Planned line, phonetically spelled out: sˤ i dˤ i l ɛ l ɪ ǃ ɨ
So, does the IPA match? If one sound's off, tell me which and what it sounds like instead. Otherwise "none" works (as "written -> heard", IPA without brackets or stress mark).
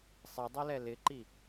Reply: ɨ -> i